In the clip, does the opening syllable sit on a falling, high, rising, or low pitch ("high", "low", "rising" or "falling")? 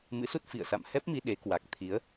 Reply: rising